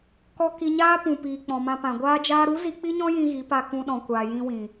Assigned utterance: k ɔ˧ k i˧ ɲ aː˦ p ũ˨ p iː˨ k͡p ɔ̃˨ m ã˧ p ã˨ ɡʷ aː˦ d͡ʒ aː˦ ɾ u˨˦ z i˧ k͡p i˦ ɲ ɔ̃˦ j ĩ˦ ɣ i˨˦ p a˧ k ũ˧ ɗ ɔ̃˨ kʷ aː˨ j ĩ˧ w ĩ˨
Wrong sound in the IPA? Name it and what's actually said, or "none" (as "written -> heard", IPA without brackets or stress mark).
none